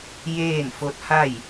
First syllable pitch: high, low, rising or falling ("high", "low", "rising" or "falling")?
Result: falling